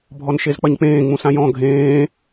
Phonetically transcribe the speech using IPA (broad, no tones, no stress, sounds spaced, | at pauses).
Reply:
bʱ ɔ n ʃ e z k͡p ɐ ɲ k͡p ẽː ŋ͡m ũ s ã j ɔ̃ ɡʱ ẽː